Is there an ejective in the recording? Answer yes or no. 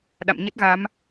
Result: no